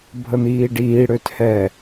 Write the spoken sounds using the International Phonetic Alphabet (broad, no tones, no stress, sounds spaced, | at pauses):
bʱ ə n̪ iː ɖ iː ɽ ø t h ɛ